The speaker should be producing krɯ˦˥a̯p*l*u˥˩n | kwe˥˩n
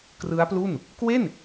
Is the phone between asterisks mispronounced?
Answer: no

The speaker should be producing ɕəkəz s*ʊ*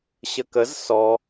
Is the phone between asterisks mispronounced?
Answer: yes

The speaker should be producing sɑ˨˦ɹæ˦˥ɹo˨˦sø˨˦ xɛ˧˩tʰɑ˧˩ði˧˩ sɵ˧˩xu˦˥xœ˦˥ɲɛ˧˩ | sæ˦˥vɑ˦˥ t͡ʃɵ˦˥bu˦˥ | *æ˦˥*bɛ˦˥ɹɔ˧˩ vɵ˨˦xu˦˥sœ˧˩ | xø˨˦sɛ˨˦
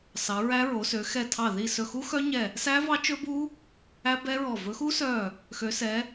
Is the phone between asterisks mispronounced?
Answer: no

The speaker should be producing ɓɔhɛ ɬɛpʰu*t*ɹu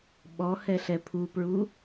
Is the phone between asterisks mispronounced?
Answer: yes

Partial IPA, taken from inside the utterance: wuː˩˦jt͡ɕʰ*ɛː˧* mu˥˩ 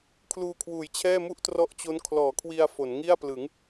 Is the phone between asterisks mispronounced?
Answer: yes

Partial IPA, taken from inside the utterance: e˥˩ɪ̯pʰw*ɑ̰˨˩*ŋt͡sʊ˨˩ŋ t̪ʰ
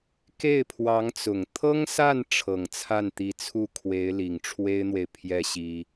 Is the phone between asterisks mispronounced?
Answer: yes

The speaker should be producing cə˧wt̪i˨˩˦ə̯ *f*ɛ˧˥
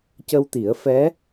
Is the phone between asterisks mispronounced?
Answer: no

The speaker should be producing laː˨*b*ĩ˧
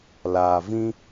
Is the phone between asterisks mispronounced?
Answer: yes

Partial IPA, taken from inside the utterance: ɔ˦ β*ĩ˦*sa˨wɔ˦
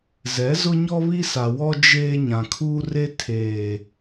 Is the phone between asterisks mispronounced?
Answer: yes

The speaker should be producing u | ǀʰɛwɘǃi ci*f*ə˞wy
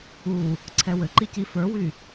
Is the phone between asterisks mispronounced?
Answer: no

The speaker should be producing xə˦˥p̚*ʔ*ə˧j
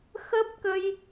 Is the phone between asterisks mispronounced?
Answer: yes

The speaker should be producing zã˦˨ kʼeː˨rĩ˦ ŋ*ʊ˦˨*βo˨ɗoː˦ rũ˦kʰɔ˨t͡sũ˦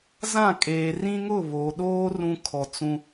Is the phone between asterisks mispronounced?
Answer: no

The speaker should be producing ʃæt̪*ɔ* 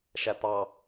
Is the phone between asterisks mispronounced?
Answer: yes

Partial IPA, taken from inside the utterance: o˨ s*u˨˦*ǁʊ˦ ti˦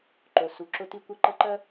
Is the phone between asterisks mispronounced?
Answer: no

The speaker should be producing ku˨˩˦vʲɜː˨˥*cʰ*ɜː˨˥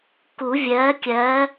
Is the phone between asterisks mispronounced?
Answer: yes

